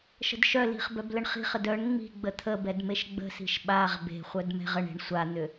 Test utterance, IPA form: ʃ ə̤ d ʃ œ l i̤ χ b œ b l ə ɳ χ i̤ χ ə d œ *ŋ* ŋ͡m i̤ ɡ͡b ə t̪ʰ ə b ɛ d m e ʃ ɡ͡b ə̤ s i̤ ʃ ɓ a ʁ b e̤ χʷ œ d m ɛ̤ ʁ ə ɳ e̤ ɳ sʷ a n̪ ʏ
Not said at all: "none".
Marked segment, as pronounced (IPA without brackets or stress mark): ɳ